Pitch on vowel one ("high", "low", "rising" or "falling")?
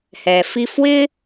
low